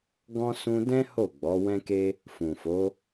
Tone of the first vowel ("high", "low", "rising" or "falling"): high